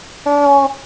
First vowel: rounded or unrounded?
rounded